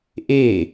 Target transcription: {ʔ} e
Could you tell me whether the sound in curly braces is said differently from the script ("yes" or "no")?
no